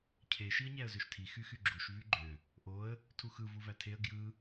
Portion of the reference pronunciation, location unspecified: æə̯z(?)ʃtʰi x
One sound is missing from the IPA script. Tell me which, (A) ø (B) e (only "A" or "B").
A